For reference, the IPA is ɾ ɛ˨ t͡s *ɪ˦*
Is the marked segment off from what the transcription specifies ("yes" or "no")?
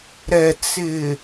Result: yes